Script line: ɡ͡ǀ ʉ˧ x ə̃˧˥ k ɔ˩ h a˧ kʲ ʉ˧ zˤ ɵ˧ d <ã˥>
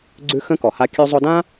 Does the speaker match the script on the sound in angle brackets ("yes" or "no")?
yes